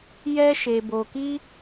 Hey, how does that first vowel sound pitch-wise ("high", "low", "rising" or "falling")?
high